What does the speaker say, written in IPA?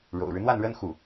ɻ o̰˨˩ ʊ̯ ɻ ɻ̩˦ n̪ w a˥˩ n ɻ ə˥ n x u˥˩

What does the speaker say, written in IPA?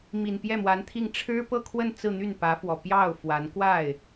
m i˨˩ n p j ɛ˥˩ m w a˧˥ n t̪ʰ i˥˩ ŋ ʈ͡ʂʰ ɻ̩˥ p ɤ˥˧ kʰ w ə˥˧ n t͡s ɹ̩˥˧ n̪ y˥˩ n p ä˧˥ f w ɔ˨˩ p j ɑ˥˩ ʊ̯ f w a˧˥ n k w a˥˩ ɪ̯

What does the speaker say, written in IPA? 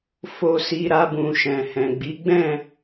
f o˧ s i˧ ɾ a˧ b ũ˨ ʃ ɛ̃˨ h ɛ̃˨ ɡ͡b i˨˦ ɡ͡b ɛ̃˦˨

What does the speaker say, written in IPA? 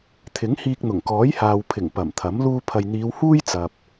t̪ʰ ɪ˨˥ ŋ h iː˧ k̚ n̪ ʊ˨˩ ŋ k ɔː˨˥ j h aː˨ w pʰ ɪ˨˩ ŋ p ɐ˨˩ m t̪ʰ ɐ˨˥ m l uː˧ pʰ ɐ˨ j n̪ iː˨˧ w h uː˥ j t͡s ɐ˨ p̚

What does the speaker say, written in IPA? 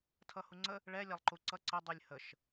tʰ ʌ h u ŋ͡ǀ ə | ɭ ɛ lʲ a lˠ ǃ u ǀ ʌ ǀ ə dˤ u lʲ h ə ʃ

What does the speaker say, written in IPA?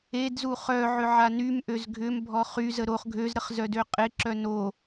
e d z u χ œ ʕ ʏ ʕ a n y m ʔ ø z ɡʱ ʏ m bʱ ɔ χ y z ə ɾ o χ ɡʱ ø z ɾ ə χ z œ d ø qʼ ɪ ǁ œ n o

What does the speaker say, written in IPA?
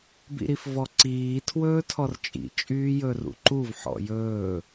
b ḭ ɾ i f v ɔ ǀ iː tʰ w ɵː tʰ ɔ r t͡ʃʼ ḭ t͡ʃʼ yː j ɵ r ṵ ǃ u v ħ ɔ̰ j ɵː

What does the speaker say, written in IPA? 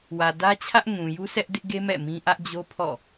w ä˨ d ä˦ t͡ɕʰ ä˦ ʔ ŋ ũ˨ j u˦ s ɛ˦ ʔ d ɪ˦ ʔ ɡ e˦ m ɛ̰˦˨ m ĩ˦ ʔ ä˦ ʔ d͡ʑ o˦ pʰ ɔ̰˦˨

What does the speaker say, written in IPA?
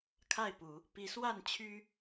kʰ a˥˨ ɪ̯ p u˨˦ | p i˨˦ s w a˥˨ n t͡ɕʰ y˦

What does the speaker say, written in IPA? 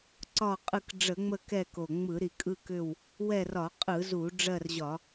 ǀ ɒ˦˨ qʼ ɯ˦˨ k ɖ͡ʐ ə˧˩˧ ŋ͡m ə˦˨ k ɛ˦˨ k o˨˩ ŋ͡m ɯ˧˩˧ ɾ i˨˩ kʼ ɯ˦˨ k ʏ˦˨ w | w ɛ˦˨ r ɒ˧˩˧ qʼ ɯ˧˩˧ z u˧˩˧ ɖ͡ʐ ɜ˦˨ r ʑ ɒ˧˩˧

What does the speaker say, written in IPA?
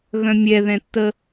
ɣ œ̃ mʲ ɛ ð ɛ̃ tː ə

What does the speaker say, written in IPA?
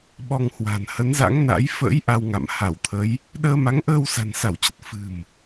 ɓ ɔ˧ ŋ h w a̤˨˩ n h ə˨˦ n z a̰˧˥ ŋ n a̰˧˥ j f ə̰˧˥ j ʔ a˧ w ŋ a̰˧˨ m h a˧˩ w t̪ʰ ə˨˦ j | ɗ əː˧ m a˨˦ ŋ ʔ əː˧ w s a̤˨˩ n s a˧˩ w t͡ɕ ə˨˩ t̚ f ɨ̤˨˩ m

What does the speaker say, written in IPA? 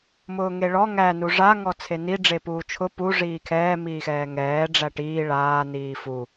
m ʊː ŋ e ɭ ɔ ŋ æ n u ʐ a ŋ ɔ t͡sʰ e n i ɖ͡ʐ e p uː t͡ʃʰ ʊ p u ʐ iː kʰ ɛː m iː x ɛː ŋ ɛː ɖ͡ʐ æ ʈ iː ɭ aː n iː f u

